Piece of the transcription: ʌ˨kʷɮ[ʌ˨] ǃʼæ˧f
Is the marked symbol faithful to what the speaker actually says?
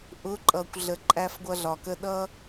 no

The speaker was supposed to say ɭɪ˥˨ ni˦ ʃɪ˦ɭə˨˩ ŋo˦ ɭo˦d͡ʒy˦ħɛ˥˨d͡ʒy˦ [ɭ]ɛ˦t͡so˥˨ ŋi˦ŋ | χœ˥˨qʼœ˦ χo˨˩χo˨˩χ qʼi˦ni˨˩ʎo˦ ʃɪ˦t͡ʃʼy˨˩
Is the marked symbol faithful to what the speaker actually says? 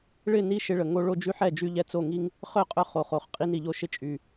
no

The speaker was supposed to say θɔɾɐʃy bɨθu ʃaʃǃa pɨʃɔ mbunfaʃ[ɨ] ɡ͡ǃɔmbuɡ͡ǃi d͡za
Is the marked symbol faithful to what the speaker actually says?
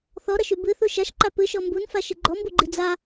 yes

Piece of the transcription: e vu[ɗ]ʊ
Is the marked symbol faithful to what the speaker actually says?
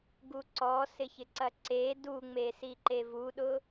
yes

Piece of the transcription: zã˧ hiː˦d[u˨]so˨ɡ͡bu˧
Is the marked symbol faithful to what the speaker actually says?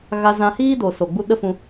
no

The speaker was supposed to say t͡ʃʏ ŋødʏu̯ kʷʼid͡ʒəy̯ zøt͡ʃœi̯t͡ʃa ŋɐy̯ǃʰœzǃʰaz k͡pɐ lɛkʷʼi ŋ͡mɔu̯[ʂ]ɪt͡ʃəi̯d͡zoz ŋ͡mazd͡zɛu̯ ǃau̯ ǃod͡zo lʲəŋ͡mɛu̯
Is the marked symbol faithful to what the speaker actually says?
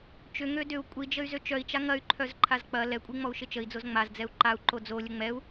no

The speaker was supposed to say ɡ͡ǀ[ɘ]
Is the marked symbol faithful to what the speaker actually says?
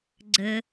yes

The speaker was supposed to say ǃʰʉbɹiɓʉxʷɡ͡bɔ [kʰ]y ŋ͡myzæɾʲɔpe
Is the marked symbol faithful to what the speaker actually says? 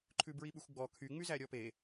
yes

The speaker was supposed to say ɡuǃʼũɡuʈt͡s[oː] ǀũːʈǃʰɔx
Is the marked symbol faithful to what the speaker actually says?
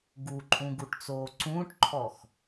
yes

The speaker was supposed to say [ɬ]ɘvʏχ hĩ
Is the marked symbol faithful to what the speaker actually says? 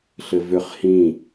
yes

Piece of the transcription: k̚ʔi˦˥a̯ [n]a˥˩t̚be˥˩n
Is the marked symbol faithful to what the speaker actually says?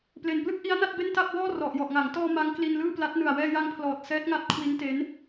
yes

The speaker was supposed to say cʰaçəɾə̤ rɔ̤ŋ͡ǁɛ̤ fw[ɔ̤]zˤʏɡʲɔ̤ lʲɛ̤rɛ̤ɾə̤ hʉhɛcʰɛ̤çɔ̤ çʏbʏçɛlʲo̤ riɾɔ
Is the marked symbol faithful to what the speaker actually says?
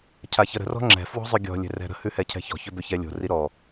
yes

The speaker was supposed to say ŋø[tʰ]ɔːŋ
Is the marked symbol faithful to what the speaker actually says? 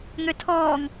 yes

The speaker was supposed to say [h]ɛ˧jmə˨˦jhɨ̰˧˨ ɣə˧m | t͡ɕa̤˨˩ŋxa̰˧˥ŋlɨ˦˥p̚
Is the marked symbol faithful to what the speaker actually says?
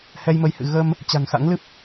yes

